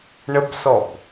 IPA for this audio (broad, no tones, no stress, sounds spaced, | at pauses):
ɳ ə b s ɔ b